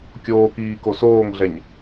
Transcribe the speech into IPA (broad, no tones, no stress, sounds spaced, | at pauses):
kʲ oː k iː k o s oː ŋ ɮ ɛ ɲ